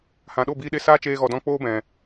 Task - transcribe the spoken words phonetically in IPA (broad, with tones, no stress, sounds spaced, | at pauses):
h ã˨ ɗ o˦˨ b iː˧ ɗ e˧ s aː˦ t͡ʃ eː˧ ɣ ɔ˨ d ɔ̃˧ k͡p oː˦ b ɛ̃˨